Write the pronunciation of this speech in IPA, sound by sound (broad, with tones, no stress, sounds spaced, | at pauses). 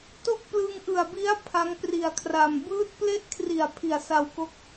t o˥˩ k̚ p l ɯ˧ ŋ ʔ ɯ˨˩ a̯ b i˦˥ a̯ pʰ a˦˥ ŋ p r i˨˩ a̯ kʰ r a˨˩ m b ɯː˦˥ t̚ p l e˥˩ ʔ kʰ r i˨˩ a̯ pʰ i˨˩ a̯ s a˧ w k o˦˥ k̚